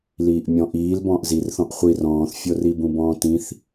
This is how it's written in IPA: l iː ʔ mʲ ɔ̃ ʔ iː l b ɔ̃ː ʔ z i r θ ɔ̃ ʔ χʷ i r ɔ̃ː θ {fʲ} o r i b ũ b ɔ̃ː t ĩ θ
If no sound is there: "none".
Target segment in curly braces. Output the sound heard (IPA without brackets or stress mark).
fʲ